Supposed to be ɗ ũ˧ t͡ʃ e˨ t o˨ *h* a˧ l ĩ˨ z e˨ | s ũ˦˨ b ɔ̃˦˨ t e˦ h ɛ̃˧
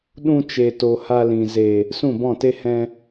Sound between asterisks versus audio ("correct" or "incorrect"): correct